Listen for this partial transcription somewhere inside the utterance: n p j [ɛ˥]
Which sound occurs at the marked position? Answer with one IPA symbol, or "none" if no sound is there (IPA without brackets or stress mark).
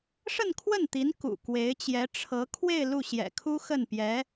ɛ˧˥